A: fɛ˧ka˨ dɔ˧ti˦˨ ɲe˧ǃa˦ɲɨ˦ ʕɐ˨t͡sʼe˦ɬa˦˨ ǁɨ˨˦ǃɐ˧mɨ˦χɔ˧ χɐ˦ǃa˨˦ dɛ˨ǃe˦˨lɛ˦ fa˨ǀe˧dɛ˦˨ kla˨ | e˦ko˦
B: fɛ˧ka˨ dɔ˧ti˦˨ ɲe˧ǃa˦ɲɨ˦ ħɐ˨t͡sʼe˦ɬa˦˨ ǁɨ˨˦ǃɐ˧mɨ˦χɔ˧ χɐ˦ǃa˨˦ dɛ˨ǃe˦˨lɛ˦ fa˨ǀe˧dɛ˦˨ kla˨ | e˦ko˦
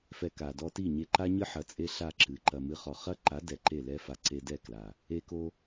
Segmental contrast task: B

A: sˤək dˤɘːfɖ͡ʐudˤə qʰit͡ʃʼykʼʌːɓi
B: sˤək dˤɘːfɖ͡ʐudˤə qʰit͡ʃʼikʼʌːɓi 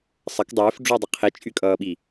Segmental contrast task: A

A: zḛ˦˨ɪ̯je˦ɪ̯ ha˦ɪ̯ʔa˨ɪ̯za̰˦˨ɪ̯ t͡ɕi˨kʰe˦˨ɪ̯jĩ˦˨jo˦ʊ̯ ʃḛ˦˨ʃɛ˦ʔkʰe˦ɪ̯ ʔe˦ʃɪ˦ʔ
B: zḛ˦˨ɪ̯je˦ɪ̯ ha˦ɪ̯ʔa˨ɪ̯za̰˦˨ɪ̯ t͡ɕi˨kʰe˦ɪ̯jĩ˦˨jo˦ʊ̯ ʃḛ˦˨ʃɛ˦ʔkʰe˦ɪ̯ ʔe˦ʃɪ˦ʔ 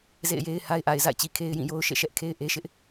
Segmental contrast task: B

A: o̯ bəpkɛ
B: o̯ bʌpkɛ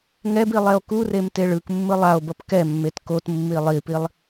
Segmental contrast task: B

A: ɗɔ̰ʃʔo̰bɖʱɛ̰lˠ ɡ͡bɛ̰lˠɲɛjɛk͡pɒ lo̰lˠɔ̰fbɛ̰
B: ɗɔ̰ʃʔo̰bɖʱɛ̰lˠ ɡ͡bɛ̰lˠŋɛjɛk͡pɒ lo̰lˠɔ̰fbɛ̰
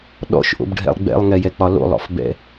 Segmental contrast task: B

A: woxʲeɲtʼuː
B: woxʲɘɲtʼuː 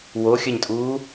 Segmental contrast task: B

